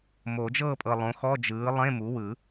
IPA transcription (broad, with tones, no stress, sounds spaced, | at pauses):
m o˨˩˦ d͡ʒ ɤ˥˨ pʼ ɤ˨ lˠ õ˩˥ x ɔ˧˥˧ d͡ʒ ɯː˩˥ lˠ ẽ˧˥˧ m u˩˥ w ɯ˨˩˦